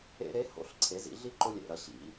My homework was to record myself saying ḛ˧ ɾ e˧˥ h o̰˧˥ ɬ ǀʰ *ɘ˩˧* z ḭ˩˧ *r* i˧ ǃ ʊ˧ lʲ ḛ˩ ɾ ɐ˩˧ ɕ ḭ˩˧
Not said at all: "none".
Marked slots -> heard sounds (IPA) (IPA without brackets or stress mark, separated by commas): e˩˧, ɮ